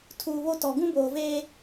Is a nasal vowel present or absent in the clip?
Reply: present